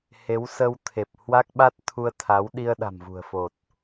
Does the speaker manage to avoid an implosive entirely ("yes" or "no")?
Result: no